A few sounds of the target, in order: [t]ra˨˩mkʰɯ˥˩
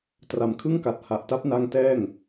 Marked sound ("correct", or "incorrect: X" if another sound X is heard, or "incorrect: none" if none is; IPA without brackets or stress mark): correct